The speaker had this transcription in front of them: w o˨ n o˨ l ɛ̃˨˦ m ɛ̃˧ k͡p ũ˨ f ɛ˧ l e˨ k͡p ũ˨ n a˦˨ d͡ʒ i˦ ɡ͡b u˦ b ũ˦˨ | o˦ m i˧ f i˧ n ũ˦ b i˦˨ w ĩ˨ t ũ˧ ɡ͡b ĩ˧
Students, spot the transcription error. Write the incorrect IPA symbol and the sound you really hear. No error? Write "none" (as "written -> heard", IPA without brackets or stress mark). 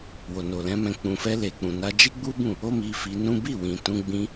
a˦˨ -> a˧